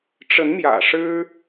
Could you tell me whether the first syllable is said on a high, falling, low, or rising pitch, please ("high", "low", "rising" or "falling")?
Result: rising